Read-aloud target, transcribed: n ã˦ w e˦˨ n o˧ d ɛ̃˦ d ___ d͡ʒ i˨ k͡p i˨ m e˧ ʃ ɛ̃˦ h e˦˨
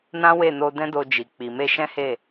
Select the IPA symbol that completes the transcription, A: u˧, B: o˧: B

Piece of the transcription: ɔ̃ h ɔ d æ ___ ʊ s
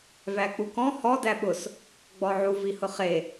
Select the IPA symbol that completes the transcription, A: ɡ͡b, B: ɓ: B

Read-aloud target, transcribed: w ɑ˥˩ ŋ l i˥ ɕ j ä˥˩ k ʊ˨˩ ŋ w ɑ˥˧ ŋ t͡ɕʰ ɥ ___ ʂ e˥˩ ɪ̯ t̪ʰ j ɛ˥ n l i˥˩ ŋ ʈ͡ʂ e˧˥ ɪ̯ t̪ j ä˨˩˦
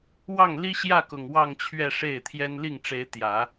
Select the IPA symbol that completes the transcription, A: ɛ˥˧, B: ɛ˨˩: A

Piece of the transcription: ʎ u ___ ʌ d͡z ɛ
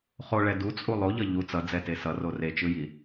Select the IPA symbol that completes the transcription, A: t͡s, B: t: A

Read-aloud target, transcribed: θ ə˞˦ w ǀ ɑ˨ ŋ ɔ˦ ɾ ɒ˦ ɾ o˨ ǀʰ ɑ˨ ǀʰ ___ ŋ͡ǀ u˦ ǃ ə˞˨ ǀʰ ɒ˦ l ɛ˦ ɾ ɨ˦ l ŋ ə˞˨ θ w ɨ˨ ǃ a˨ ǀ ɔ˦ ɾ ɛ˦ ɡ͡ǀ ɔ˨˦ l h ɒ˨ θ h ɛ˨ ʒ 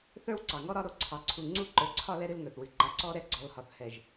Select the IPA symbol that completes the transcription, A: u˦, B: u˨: B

